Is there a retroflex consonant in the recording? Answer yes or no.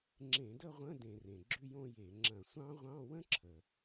no